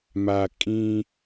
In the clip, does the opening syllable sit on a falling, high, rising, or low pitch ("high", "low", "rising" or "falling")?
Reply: low